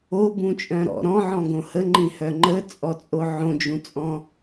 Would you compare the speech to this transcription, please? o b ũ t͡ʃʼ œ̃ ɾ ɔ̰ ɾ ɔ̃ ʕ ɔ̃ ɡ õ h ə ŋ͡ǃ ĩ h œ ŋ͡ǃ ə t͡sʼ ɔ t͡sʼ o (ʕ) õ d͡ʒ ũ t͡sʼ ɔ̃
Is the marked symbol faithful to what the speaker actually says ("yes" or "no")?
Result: yes